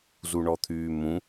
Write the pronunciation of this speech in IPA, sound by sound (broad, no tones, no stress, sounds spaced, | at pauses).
z u ɳ ɔ t̪ʰ yː m ũ